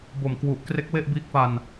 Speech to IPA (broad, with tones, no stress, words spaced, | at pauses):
bo˨˩mkwu˨˩ʔkre˦˥k̚ we˥˩ʔbiː˦˥k̚fa˧n